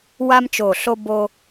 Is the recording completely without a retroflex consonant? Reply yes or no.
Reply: yes